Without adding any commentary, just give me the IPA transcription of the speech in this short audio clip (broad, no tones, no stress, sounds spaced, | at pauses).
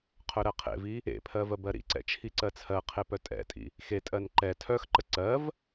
qʰ œ ɾ ɜ qʰ ḛ v i | ḛ pʰ ɜ v ɜ b ɜ ɾ ḭ ǀ ɛ̰ t͡ʃʰ i ǀ ɜ t͡sʰ ɜ qʰ e p œ tʼ ɛ̰ tʼ ḭ | x e tʼ ɜ n ǃ ɛ tʰ œ x ǃ ə ǀ ɜ v